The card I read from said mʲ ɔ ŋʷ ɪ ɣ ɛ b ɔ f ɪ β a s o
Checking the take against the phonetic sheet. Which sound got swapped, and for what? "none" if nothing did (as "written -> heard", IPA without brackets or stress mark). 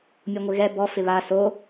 none